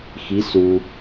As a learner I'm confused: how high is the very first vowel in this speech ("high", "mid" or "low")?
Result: high